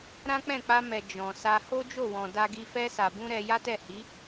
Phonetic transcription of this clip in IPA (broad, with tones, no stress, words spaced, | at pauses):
ɾã˦k͡pɛ̃˦˨ k͡pa˧mɛ˨ d͡ʒɔ̃˨ sa˧ ho˦d͡ʒo˦˨wɔ̃˨ da˧ɡi˧ fɛ˧sa˨bũ˧ ɾɛ˧ ja˦tɛ˦˨hi˨˦